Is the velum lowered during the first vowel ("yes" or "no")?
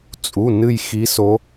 no